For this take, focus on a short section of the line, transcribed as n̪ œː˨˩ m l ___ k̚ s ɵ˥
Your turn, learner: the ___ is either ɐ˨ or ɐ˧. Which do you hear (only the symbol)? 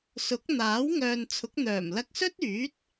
ɐ˧